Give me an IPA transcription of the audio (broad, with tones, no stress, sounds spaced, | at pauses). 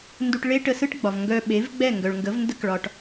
n d u˧ ʈ ɭ e˥ ʈ ə˧ s ɯ˥ ʈ ɡ͡b ɒ˩ v ŋ ɡ œ˧ ɓ e˩˥ v ɡ͡b ɛ˥˩ ŋ ɡ œ˩ ɭ ŋ ɡ ə˩˥ v n d ə˥ k ɭ ɒ˩ ʈ